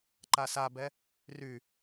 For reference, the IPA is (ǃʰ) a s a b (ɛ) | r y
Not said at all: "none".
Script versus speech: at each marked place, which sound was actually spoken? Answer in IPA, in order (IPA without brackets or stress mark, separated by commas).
ǃ, ɛ